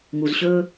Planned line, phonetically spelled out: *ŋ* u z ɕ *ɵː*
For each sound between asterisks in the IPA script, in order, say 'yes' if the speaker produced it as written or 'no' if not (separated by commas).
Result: yes, yes